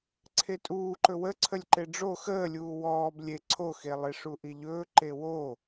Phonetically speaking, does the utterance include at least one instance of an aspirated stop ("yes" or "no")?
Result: yes